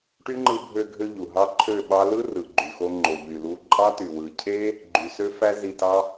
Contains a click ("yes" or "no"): yes